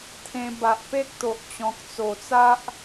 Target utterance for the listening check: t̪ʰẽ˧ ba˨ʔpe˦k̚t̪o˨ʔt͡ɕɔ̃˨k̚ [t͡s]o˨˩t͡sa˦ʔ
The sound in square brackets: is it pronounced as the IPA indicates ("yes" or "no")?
yes